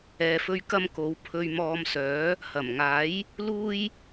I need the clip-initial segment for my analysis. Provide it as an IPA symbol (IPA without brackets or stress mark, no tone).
ɛː